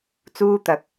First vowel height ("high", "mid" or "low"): high